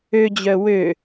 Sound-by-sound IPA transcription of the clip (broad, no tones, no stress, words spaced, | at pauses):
ød͡ʑœ wø